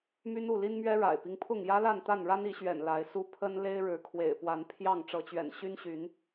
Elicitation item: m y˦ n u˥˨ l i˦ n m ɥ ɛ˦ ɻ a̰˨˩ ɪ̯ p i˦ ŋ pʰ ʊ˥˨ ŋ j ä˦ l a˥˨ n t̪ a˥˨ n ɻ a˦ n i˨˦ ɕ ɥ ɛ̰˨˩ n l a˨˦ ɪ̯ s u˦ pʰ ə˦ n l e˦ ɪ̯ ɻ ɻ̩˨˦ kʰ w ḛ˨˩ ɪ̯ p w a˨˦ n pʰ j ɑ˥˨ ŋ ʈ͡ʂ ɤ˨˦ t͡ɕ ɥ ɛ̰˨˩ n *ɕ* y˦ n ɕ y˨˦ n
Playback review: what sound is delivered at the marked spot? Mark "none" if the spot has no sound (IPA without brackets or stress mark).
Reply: ɕ